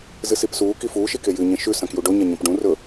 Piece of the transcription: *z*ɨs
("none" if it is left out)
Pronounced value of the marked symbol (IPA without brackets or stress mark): z